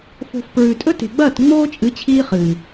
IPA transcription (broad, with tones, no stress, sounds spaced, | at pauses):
f o̤˦ f p ɹ ʉ˧ tʼ ɵ˦ t e̤˨ ɡ͡b ɐː˦˨ t ŋ͡m oː˦ t͡ʃʼ ɨ˨˦ t͡ɕʰ iː˦ χ ɨː˨